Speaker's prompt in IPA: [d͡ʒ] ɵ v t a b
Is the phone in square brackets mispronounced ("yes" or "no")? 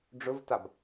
yes